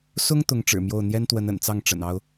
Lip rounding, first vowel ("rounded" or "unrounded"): rounded